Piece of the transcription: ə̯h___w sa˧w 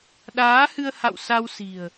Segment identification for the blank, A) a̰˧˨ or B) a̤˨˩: A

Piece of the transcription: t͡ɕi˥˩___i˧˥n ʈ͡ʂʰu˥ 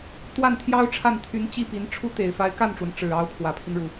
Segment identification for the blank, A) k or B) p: B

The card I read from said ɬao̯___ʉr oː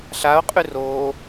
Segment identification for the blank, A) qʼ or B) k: A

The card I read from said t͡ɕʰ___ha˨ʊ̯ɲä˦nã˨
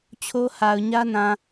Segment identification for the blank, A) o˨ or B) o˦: B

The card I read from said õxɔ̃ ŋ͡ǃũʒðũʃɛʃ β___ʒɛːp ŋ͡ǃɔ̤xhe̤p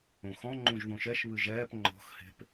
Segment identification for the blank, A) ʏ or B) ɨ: B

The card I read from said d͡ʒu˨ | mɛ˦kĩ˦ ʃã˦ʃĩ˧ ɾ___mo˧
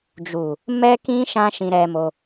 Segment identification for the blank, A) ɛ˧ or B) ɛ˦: A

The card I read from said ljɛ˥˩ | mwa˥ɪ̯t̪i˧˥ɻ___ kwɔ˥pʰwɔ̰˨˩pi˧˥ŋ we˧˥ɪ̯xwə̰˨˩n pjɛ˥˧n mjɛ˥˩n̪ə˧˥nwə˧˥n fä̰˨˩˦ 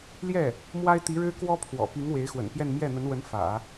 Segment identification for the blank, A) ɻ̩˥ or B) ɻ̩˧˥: A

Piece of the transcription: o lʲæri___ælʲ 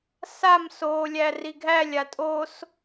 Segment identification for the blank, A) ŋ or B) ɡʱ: B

